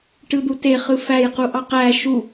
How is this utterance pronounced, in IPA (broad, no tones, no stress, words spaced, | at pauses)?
ʈɯd̪ute χɯfæj quʔɑqæ ʃu